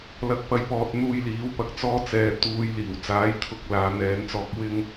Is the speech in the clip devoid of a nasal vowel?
yes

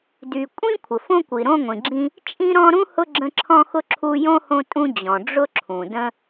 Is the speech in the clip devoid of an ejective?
no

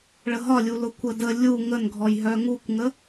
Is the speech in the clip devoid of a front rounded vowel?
no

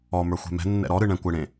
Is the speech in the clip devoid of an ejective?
yes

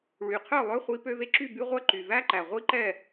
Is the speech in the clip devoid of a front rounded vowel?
no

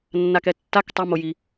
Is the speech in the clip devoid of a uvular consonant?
yes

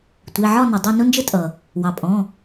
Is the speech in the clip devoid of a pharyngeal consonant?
no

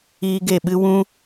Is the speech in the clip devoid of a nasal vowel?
no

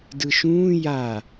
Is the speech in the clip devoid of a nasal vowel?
no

